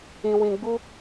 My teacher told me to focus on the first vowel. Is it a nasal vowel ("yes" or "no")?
yes